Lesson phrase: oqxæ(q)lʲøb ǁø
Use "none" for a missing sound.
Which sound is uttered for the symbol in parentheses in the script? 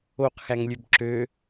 ŋ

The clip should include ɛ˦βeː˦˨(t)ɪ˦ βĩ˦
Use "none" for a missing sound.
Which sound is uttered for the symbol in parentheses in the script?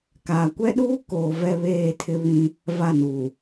tʰ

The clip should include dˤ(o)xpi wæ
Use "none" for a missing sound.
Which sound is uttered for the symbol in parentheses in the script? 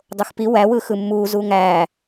o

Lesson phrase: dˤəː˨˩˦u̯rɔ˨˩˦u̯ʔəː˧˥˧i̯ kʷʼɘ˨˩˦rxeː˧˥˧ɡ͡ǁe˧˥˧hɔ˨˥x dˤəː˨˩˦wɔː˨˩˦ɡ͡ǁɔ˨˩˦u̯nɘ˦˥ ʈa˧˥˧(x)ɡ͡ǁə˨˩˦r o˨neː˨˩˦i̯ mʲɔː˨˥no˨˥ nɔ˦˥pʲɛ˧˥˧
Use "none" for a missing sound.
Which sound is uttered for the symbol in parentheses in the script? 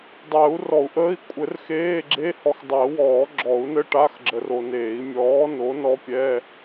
x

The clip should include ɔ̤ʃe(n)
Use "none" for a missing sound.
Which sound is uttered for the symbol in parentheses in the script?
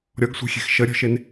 n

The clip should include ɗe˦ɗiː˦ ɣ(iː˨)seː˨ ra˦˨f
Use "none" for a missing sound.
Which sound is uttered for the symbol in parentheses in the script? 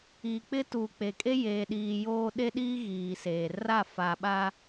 iː˨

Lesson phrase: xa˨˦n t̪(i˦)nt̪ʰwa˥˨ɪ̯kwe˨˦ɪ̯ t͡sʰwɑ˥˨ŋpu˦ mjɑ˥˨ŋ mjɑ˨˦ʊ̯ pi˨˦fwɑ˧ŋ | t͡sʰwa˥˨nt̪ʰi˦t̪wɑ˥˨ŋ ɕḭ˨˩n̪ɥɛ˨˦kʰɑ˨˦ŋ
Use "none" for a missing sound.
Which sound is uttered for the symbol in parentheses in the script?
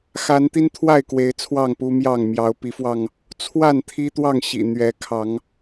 i˦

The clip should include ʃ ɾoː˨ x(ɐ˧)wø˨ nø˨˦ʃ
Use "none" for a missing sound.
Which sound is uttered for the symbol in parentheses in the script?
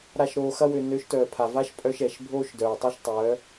ɐ˧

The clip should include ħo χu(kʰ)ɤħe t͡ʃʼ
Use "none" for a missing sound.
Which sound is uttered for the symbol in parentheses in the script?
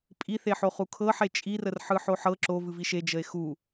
kʰ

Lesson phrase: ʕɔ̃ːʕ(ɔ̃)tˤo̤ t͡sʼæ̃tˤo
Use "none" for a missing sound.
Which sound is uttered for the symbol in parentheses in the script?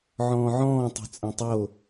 ɔ̃ː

